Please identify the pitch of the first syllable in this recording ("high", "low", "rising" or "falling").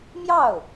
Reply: falling